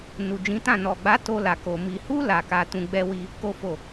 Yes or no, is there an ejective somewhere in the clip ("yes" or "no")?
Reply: no